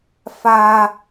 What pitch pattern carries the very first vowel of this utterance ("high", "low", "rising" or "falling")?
high